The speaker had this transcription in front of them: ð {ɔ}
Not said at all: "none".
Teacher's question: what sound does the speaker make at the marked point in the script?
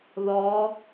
ɔ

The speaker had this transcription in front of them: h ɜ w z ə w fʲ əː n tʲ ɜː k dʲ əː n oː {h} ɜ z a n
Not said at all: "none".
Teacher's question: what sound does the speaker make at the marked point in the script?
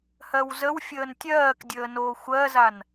xʷ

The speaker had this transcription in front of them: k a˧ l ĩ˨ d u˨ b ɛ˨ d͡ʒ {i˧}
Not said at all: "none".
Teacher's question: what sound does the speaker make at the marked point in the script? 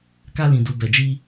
i˧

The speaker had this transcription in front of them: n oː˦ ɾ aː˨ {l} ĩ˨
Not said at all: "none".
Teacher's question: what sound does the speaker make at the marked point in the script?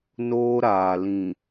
l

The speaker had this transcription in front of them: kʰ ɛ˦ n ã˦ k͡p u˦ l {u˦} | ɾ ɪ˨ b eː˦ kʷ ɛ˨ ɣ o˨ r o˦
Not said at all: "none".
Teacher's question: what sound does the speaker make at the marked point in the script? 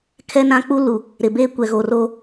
u˨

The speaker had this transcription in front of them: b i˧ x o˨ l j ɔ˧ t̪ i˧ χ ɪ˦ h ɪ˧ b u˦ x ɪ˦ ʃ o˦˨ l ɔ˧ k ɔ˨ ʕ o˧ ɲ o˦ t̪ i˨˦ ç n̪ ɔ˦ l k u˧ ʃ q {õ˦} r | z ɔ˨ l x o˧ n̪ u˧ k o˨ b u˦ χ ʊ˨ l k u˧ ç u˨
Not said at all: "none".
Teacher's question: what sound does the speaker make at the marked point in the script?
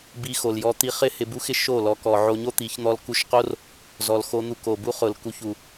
o˦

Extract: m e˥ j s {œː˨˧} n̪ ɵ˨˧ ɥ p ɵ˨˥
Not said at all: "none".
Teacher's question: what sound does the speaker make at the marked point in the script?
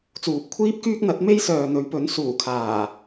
œː˨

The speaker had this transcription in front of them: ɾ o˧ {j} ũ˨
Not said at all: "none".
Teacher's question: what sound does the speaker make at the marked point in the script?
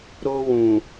w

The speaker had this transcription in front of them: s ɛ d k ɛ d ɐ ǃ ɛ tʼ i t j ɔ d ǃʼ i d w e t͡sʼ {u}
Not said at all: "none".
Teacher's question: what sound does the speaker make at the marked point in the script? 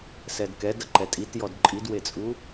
u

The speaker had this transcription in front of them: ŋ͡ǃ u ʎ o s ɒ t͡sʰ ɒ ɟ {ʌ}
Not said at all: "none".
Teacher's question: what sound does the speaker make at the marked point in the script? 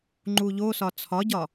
ɒ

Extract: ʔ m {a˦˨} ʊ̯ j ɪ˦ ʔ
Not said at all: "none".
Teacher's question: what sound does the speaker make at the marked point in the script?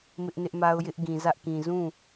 a˦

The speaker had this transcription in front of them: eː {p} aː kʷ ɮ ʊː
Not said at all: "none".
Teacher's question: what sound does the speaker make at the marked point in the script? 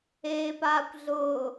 p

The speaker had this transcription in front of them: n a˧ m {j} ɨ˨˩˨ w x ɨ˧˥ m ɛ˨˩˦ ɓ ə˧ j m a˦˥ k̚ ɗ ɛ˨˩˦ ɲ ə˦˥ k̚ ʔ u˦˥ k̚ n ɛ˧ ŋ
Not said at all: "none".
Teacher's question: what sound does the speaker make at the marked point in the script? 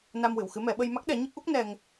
w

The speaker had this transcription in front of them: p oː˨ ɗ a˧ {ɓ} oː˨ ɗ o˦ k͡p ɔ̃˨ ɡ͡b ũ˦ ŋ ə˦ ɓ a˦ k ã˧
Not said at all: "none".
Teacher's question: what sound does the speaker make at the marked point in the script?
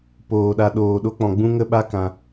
ɗ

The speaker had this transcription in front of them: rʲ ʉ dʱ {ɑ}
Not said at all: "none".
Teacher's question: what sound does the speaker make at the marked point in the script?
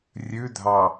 ɑ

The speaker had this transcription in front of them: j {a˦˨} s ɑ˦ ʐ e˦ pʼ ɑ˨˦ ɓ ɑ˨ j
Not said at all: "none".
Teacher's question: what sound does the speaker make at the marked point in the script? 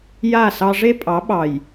a˦˨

